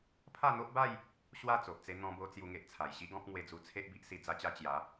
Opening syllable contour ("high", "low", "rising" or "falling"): falling